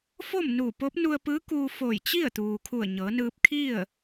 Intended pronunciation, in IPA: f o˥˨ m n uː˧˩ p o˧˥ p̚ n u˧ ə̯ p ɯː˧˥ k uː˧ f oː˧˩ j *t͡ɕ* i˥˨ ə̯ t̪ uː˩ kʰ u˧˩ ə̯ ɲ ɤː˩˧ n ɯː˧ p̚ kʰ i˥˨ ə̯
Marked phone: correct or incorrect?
correct